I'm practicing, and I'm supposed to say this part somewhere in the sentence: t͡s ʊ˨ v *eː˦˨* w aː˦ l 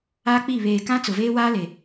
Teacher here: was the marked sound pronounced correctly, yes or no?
no